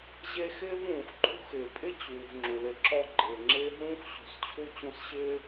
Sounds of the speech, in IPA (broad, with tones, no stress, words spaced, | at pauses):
ʑe˦xɪː˥vũː˩x ǃʰṳ˥xɪː˩ pʼɪ˥t͡ɕuː˩v ŋ͡ǁu˩lɪ˨ǁɔ˦ ɡ͡ǃɪː˩ŋ͡ǁɪː˥ ɦũː˥xɕṳ˨st͡ɕʰu˥ t͡ɕũ˦sɕɪː˥